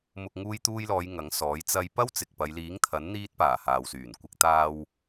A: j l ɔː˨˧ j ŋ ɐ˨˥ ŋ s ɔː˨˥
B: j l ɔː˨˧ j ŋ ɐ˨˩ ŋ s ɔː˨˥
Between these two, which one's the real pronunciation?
A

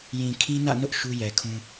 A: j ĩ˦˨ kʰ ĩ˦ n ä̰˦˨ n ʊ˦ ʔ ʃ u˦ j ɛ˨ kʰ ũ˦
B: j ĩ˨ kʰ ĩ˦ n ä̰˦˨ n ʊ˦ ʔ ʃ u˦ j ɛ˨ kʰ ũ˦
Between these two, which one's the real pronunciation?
B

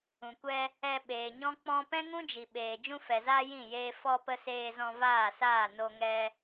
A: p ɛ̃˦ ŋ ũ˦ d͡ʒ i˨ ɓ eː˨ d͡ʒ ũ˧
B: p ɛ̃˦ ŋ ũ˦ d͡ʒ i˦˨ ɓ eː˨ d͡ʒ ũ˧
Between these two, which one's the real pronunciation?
A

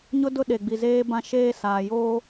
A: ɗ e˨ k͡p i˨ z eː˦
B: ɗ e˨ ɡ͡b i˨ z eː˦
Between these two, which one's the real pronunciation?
B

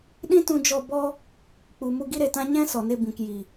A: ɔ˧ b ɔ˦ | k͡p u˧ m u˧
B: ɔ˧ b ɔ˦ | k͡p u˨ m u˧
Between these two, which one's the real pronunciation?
B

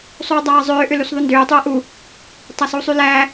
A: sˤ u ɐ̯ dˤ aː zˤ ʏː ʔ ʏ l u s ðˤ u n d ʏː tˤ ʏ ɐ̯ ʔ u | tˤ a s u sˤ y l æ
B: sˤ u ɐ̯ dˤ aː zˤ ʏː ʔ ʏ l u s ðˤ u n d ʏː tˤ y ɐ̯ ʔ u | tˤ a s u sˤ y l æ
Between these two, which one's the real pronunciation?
B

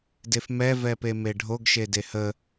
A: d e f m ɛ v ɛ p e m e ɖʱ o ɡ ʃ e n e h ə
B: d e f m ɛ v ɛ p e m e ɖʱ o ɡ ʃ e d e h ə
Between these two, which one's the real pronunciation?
B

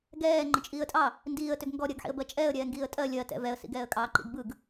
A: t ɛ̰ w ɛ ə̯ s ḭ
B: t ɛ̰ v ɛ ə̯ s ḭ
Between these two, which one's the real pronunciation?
B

